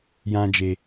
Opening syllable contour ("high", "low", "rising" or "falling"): high